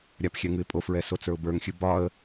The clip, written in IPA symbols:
ɾʲ a p xʲ ɛ ŋ ɨ ɪ̯ pʼ o f ɹ ɛ s o t͡s ə˞ ʊ̯ b ə˞ ŋ xʲ ɨ b ɒ ə̯

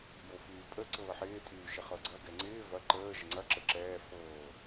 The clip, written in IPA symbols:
j o f yː pʼ ə ǀ ɤː ħ ɪː tʼ yː ʃ ɪ χ ɤ ɡ͡ǀ ɐ ɡ ɛ ŋ͡ǀ ɪː v ɐ ǃ əː ʒ ə ŋ͡ǀ ɐ ǁ ə ǁ ɛː f ɤː

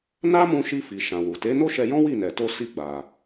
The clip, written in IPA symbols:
n a˦ m ũ˧ ʃ i˧ f i˨ ʃ ã˨ w u˨ t e˨˦ n o˦ ʃ ɛ˧ j ɔ̃˦ w i˦˨ n ɛ˨ t o˧ s i˧ ɡ͡b a˨

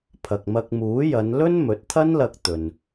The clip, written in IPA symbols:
pʰ ɐ˨ k̚ m ɐ˧ k̚ m uː˨˥ j ɐ˨˧ n l ɵ˥ n m ɵ˨˥ t̚ t̪ʰ ɐ˥ n l ɐ˧ k̚ t̪ ɵ˨ n

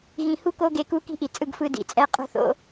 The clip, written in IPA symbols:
ɣ ĩ˨ h u˦ k o˦ ɡ e˧ k u˦ k i̤˦ ʔ i˨ t͡sʼ ɯ˦˨ ɡ f ɯ˧ d ḭ˨ t͡sʼ ɛ˧ qʼ o̤˦ θ o̰˦

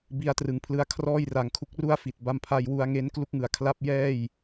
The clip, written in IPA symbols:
b i˧ a̯ t r ɯ˩˦ ŋ pʰ l ɯ˧ a̯ kʰ r ɔː˥˩ j r a˨˩ ŋ kʰ u˦˥ k̚ r u˥˩ a̯ f i˨˩ t̚ b a˧ m pʰ a˧ j w u˧ a̯ ŋ e˦˥ n k l u˦˥ k̚ ŋ ɯ˨˩ a̯ kʰ l a˦˥ p̚ j ɛː˥˩ j

